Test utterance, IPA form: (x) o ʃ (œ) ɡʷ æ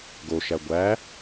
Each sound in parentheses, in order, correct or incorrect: incorrect: ɡ, incorrect: æ

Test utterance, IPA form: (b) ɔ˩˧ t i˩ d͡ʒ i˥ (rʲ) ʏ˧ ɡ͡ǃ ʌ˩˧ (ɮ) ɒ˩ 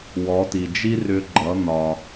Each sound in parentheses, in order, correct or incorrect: incorrect: w, incorrect: r, incorrect: n̪

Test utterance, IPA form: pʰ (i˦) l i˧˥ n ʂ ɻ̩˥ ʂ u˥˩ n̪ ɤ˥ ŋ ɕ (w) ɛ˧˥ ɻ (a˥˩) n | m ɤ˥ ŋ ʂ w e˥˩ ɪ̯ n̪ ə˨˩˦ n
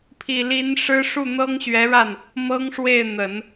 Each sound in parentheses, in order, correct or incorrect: incorrect: i˨˩, incorrect: ɥ, correct

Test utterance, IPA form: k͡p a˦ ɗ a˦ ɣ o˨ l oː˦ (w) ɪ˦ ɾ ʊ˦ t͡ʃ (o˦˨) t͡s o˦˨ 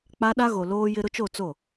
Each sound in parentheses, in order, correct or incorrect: incorrect: j, correct

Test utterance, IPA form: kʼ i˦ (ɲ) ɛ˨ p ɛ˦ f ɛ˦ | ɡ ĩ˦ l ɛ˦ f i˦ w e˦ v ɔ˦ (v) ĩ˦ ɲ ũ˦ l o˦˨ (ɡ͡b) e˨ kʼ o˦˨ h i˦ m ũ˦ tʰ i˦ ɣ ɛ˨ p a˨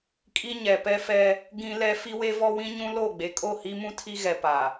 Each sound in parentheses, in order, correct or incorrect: correct, incorrect: w, correct

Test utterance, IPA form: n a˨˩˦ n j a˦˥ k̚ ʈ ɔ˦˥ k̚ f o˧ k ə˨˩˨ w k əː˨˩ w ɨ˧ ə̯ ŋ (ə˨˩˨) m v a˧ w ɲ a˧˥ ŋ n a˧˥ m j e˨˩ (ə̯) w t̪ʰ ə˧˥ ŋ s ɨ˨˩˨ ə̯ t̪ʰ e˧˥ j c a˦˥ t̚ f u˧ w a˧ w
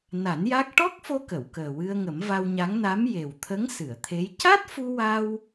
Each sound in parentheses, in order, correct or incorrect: incorrect: ə˨˩˦, incorrect: none

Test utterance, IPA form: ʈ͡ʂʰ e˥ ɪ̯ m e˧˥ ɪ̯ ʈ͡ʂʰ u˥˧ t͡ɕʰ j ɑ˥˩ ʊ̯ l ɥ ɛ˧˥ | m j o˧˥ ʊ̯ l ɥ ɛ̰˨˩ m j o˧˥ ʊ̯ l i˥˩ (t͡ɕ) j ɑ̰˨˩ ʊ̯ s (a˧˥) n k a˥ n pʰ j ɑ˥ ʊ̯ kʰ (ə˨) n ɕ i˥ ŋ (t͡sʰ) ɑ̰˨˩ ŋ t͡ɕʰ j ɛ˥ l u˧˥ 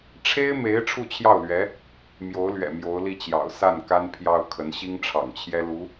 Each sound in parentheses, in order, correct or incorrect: correct, incorrect: a˥˩, incorrect: ə˧˥, incorrect: ʈ͡ʂʰ

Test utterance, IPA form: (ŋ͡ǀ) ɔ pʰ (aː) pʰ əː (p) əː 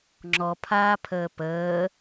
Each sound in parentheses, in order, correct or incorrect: incorrect: ŋ͡ǁ, correct, correct

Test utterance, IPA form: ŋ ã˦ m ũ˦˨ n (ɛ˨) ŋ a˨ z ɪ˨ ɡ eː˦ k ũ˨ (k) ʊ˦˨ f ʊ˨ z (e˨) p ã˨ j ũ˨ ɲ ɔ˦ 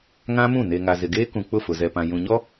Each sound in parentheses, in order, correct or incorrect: incorrect: e˨, incorrect: k͡p, incorrect: ɛ˨

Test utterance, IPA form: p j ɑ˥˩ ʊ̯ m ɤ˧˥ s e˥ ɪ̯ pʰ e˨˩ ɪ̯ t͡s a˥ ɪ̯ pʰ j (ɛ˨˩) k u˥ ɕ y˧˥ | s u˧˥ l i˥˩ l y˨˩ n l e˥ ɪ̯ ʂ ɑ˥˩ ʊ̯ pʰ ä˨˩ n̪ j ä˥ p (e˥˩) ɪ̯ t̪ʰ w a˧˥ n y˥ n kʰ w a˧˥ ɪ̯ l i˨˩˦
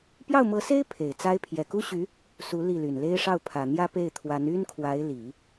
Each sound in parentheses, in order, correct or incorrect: correct, correct

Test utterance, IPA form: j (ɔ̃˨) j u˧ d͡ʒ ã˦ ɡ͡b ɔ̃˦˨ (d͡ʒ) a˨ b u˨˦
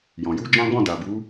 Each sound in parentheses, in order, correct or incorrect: correct, incorrect: d

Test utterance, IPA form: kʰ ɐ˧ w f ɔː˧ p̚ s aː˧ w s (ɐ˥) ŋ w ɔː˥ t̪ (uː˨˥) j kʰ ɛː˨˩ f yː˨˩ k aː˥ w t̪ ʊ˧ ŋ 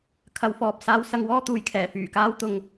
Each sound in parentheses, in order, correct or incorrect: incorrect: ɐ˧, incorrect: uː˨˩

